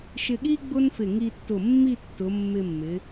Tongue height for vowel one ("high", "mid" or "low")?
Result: high